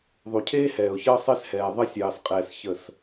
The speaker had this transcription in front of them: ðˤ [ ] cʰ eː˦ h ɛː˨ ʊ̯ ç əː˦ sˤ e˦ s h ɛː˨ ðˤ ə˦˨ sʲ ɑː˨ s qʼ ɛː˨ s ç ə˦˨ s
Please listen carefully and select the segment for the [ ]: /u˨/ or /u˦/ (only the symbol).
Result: u˨